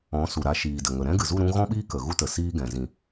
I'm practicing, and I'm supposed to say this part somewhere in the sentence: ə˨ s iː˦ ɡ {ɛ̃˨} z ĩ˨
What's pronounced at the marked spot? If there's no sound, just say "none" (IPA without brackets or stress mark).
ɛ̃˨